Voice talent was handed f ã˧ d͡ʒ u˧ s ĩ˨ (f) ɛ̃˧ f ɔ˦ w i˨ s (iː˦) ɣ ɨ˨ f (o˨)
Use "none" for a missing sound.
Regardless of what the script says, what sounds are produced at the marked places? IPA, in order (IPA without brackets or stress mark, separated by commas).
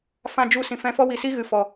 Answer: f, i˦, ɔ˨